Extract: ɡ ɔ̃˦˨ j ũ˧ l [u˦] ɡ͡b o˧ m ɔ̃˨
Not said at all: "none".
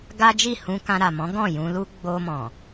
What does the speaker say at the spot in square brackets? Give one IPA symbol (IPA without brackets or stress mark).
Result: u˦